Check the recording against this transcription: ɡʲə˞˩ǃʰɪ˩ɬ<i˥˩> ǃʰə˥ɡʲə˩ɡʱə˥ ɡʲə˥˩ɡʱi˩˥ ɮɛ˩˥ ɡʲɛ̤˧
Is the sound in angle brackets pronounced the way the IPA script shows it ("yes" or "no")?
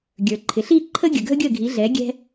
yes